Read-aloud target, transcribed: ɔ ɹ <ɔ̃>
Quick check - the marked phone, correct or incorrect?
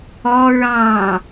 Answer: incorrect